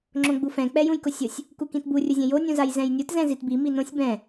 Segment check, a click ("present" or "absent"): present